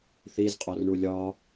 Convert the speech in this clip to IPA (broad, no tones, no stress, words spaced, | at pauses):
θiz qʼɔrɳulʲɒ